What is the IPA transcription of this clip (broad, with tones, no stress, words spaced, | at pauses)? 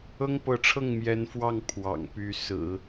ɤ˥ŋpɤ˧˥ʈ͡ʂʰɤ˥˩ŋ mjɛ˧˥nfwɑ˥˩ŋ pʰwɑ̰˨˩ŋpy˧˥ sɹ̩˨˩˦